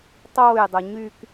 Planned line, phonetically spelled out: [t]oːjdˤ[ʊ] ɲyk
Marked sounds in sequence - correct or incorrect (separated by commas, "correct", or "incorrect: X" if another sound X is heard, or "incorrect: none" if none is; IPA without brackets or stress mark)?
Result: incorrect: tˤ, correct